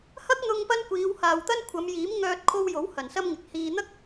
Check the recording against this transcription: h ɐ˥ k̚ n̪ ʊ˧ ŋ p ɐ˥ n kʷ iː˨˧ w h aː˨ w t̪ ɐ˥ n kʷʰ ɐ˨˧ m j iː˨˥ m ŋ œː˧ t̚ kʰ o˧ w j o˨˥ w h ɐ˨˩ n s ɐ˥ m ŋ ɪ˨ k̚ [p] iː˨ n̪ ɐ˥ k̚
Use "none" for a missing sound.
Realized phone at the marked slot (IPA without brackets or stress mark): h